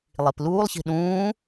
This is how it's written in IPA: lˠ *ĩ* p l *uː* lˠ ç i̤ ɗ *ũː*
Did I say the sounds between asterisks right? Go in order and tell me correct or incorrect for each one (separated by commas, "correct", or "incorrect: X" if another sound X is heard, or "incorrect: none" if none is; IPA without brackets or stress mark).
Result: incorrect: i, correct, correct